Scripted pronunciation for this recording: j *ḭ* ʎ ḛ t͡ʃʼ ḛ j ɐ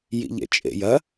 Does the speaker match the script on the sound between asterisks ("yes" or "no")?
yes